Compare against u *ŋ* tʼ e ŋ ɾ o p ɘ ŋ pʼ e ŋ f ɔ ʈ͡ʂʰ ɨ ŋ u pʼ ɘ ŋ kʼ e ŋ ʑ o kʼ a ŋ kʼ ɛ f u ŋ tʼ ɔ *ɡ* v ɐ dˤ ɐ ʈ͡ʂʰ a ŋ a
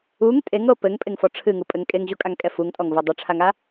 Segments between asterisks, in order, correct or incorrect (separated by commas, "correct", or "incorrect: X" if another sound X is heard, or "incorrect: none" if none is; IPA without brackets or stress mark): correct, incorrect: ŋ